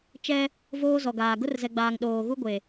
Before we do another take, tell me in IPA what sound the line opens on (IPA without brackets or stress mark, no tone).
t͡ʃ